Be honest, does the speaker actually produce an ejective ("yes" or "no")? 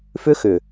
no